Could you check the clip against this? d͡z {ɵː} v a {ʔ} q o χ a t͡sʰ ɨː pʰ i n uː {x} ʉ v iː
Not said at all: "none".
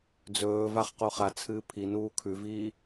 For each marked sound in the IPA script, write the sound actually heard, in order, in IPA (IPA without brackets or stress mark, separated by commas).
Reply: ɵː, χ, kʰ